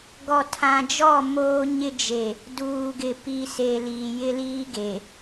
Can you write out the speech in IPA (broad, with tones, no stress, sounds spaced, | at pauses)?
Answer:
ɡ ɔ˨ tʰ ã˨ d͡ʒ ɔ˦˨ m oː˦ ɲ ɪ˦ d͡ʒ e˨ | d uː˨ ɡ ɪ˨ p i˨ s e˨ l iː˨ j ɪ˦ l iː˦ ɡ e˨